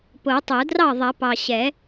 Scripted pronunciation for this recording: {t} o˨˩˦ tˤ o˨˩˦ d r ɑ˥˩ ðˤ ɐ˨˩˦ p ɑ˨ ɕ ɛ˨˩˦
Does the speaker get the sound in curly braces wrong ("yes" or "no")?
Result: yes